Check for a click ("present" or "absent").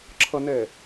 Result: present